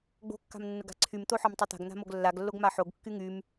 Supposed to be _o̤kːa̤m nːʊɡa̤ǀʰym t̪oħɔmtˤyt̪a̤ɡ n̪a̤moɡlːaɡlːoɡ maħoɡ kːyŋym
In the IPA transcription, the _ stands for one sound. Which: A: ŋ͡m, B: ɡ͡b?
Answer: B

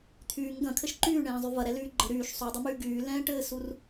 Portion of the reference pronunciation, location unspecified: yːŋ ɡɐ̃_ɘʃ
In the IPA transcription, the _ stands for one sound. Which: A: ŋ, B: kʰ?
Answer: B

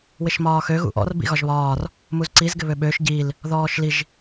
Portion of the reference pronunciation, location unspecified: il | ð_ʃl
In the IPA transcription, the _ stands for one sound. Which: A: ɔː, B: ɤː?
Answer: A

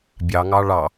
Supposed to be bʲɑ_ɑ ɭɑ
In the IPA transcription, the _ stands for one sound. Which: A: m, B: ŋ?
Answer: B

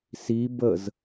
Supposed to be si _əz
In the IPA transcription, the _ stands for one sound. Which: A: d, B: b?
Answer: B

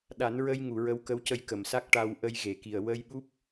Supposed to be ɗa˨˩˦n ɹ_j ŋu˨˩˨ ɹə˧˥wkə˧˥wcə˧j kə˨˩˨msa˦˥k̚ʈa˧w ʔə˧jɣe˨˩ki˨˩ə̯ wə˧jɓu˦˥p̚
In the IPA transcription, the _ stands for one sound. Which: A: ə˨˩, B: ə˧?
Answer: B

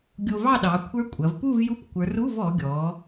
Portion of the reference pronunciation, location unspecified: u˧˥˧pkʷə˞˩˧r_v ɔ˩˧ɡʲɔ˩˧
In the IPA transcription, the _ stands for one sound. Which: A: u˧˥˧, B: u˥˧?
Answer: A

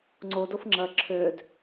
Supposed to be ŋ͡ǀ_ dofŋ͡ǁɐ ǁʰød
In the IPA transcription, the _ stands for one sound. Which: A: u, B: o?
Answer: B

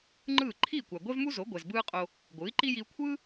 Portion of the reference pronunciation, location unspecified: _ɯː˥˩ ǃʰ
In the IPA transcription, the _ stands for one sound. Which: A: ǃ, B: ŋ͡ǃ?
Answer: B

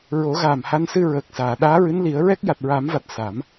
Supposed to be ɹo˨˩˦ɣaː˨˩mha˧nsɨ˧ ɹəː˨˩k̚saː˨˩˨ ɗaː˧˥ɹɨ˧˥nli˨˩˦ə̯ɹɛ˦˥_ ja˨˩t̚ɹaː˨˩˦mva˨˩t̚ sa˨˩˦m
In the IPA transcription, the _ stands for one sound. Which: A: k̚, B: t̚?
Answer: A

